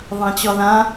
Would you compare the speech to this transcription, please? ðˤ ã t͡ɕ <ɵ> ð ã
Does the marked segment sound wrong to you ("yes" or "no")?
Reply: yes